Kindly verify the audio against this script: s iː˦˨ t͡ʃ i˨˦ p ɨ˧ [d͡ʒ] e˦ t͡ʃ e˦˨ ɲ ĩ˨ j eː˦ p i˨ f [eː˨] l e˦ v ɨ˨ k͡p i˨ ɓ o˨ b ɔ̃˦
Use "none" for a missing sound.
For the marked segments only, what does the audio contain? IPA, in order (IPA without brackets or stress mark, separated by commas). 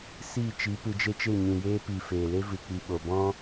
d͡ʒ, eː˨